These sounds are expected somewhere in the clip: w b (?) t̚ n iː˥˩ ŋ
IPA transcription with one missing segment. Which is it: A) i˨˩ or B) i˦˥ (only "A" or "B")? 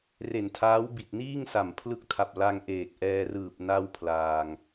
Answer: A